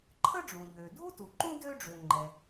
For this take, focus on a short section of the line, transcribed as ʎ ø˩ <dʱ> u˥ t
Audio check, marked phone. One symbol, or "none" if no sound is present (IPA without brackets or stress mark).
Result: dʱ